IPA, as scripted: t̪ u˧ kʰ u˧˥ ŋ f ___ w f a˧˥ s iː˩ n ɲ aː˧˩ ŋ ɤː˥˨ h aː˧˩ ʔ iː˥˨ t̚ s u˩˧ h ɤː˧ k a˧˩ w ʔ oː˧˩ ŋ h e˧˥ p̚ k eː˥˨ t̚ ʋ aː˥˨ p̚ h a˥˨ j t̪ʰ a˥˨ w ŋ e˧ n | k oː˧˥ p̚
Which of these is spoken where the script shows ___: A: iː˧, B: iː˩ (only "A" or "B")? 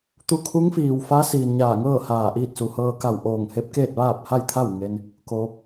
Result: B